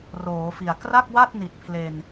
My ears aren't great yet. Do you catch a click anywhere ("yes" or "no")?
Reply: no